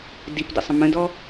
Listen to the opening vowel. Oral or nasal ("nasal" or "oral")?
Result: oral